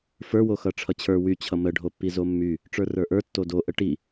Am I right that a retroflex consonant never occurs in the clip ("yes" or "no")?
no